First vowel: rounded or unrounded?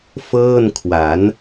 unrounded